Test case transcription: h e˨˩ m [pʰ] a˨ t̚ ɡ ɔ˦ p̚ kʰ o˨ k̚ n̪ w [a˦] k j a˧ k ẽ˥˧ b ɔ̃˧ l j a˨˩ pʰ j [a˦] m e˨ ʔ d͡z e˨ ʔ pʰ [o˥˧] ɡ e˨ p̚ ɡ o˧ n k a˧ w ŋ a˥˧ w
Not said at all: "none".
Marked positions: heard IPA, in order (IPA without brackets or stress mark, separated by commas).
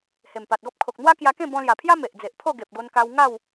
p, a˦, a˦, o˥˧